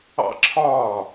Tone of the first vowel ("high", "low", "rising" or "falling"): high